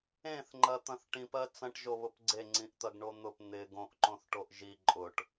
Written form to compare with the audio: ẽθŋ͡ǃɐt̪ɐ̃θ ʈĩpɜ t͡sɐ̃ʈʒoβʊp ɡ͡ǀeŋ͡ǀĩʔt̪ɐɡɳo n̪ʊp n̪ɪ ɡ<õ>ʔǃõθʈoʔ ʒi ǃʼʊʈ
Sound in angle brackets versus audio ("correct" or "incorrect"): correct